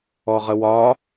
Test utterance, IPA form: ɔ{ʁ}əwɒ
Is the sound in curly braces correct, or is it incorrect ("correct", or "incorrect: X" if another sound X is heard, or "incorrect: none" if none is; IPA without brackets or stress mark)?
correct